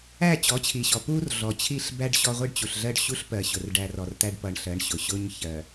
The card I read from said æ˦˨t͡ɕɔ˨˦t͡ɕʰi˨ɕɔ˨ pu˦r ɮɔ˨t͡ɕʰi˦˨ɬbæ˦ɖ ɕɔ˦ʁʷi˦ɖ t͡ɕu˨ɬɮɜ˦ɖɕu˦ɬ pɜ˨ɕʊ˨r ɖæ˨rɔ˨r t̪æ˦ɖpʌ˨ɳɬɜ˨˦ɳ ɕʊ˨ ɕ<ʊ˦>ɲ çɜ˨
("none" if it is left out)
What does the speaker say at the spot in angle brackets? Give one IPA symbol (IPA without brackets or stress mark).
ʊ˦